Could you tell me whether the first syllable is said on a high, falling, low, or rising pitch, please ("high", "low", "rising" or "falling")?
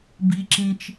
low